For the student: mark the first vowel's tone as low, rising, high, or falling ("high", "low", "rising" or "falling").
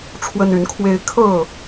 high